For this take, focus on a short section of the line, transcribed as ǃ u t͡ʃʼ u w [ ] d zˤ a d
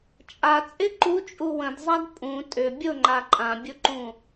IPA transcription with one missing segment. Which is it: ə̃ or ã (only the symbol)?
ə̃